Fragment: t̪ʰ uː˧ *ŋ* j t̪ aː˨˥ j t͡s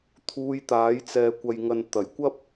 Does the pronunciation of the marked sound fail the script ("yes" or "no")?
yes